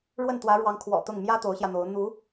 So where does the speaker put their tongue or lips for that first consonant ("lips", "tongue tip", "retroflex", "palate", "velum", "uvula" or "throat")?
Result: retroflex